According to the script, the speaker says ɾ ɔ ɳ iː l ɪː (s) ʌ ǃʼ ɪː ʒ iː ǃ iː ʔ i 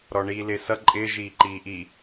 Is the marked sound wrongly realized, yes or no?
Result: no